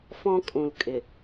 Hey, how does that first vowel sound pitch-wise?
high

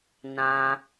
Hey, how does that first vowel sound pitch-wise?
low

